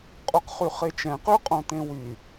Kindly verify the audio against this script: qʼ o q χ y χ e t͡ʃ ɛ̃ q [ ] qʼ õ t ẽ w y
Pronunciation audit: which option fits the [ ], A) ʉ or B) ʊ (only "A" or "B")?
A